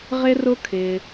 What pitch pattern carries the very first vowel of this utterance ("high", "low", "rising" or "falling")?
high